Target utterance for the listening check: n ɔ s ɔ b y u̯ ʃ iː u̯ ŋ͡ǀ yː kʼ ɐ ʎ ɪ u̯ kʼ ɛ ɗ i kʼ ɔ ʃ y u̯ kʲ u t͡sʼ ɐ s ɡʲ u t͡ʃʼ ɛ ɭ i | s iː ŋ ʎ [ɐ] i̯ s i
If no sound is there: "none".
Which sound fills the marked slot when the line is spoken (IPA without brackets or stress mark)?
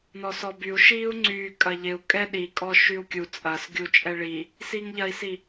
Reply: ɐ